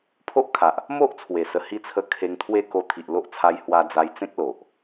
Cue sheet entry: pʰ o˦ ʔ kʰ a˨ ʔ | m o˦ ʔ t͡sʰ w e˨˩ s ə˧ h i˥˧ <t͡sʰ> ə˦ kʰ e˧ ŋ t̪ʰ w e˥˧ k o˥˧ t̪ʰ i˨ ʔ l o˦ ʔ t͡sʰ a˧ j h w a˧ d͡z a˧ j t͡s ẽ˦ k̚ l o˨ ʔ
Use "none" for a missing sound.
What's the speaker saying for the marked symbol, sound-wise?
t͡sʰ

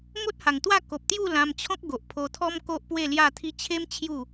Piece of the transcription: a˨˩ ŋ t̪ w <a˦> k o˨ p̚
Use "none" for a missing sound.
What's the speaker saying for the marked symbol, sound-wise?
a˥˧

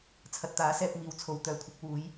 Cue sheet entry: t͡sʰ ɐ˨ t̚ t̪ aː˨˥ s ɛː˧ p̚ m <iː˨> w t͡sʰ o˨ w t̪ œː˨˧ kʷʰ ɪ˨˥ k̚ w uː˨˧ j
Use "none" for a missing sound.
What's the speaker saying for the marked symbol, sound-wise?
iː˨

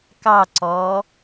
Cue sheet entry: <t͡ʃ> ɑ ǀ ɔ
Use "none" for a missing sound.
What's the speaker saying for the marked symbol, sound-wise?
k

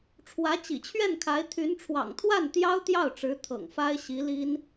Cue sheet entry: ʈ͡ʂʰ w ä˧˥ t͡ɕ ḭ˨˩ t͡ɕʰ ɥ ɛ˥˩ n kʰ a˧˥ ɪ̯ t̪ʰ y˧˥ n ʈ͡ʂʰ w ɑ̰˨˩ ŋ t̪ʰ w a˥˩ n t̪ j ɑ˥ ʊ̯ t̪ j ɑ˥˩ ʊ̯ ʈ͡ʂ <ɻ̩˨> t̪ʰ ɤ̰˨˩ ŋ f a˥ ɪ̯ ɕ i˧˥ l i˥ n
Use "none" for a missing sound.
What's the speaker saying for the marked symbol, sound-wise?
ɻ̩˧˥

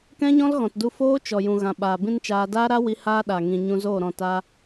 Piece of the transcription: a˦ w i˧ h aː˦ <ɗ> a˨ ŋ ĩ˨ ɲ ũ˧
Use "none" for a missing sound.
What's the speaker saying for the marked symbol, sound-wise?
ɗ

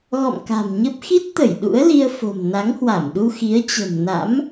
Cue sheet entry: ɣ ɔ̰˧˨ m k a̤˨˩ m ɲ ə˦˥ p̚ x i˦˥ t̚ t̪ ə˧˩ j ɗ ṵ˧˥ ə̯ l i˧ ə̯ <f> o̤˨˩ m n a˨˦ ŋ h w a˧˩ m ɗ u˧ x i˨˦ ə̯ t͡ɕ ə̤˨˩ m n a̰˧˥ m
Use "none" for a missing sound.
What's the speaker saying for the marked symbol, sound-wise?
f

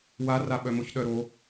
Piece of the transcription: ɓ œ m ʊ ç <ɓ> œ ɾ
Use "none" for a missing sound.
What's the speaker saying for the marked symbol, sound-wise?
ɗ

